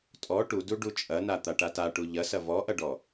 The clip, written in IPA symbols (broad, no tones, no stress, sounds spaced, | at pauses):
tʼ ɔ ʈ u d u ɖ u t͡ʃʼ ɐ n a t̪ a ʈ a t a ʈ u ʎ ɐ s ɐ v ɔ ʔ ɐ ɖ ɔ